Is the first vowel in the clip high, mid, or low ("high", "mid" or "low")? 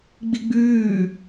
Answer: high